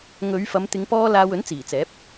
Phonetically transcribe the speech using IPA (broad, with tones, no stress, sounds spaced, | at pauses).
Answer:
ŋ ɵ˨˧ ɥ f ɐ˨˧ m t̪ ɪ˨˧ ŋ p ɔː˥ l aː˧ w ɵ˨˥ n t͡s iː˨˩ t͡s ɛː˨˥ p̚